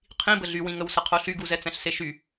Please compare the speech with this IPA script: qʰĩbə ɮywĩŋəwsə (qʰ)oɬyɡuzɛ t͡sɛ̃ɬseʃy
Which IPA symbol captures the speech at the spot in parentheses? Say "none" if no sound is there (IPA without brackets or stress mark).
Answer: qʰ